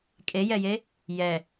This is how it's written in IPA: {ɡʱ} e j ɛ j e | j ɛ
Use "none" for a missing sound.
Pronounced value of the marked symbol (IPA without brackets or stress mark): kʼ